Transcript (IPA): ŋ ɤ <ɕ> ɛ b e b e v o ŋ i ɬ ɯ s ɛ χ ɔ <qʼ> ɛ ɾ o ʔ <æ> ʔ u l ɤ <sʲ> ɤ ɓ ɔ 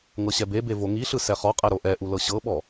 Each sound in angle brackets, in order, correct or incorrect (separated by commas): correct, correct, incorrect, incorrect